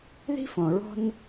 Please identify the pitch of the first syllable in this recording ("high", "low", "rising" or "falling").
high